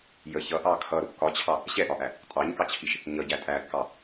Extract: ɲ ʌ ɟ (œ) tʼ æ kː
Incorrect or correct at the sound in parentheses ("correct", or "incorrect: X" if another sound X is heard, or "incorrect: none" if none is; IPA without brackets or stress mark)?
incorrect: æ